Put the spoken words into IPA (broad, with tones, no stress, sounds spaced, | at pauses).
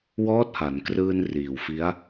w ɔː˦˥ t̚ h a˩˦ n k r ɯː˧ n r iː˨˩ w f i˦˥ a̯